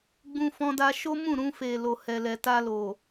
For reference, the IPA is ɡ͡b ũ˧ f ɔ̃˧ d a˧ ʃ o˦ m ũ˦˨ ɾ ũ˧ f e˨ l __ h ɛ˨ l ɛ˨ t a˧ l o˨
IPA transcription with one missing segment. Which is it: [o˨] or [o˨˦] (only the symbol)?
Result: o˨